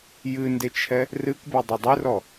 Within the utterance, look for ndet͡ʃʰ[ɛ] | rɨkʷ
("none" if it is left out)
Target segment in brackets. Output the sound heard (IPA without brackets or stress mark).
ɛ